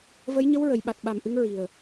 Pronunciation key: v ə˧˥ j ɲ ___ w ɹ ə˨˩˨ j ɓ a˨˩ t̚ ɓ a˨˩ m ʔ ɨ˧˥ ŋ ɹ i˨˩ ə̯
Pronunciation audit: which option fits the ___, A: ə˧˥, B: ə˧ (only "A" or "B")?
A